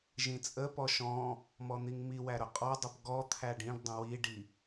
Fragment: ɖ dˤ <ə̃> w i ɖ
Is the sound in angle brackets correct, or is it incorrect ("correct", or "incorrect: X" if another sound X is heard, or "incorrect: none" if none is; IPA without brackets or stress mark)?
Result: correct